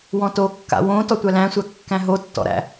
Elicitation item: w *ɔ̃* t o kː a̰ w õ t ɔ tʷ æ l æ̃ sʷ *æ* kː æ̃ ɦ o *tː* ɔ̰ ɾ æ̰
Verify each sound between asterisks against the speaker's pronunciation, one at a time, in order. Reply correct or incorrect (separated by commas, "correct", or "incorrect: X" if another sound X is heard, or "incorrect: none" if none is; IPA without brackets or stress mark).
correct, correct, correct